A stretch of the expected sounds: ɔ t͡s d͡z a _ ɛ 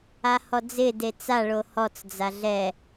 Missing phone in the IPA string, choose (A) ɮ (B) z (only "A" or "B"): A